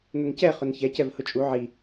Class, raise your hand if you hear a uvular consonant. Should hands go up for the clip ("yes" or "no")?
yes